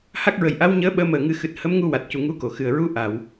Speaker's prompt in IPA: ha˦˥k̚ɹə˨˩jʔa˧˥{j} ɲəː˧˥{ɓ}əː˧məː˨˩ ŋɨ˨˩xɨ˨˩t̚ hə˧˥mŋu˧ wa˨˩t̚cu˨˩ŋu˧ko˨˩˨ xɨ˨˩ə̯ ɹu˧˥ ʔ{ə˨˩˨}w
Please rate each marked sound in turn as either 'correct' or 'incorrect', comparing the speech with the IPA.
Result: incorrect, correct, incorrect

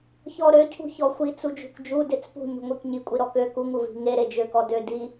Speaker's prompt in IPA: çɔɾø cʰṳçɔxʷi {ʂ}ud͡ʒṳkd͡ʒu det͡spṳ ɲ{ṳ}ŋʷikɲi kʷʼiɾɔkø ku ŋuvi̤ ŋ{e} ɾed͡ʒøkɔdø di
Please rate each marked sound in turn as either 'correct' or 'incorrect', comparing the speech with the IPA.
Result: incorrect, correct, correct

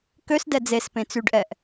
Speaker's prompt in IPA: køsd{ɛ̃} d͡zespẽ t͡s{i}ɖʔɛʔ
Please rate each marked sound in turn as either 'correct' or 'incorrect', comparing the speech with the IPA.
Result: incorrect, incorrect

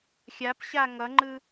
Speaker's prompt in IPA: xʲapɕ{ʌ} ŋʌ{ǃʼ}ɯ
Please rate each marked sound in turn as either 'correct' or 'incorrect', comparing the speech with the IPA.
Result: incorrect, incorrect

